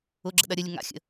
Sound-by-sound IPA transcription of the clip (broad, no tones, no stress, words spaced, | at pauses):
ʊɡ͡ǁə̰ɗɐ ɾʲəlʲə ŋa̰ xʲə̰